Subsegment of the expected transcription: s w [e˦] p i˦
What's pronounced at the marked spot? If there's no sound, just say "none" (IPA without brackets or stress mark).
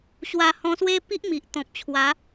e˦